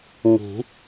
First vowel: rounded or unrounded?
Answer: unrounded